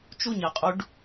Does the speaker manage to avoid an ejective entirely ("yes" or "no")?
no